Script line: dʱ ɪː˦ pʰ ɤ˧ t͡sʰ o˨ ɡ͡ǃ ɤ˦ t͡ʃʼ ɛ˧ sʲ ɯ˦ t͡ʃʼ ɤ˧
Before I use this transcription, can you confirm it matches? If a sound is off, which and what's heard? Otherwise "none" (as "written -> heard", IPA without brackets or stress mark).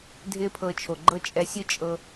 t͡sʰ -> t͡ʃʰ